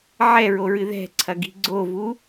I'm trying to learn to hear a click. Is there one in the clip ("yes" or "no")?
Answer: yes